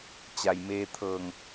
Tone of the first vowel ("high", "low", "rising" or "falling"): low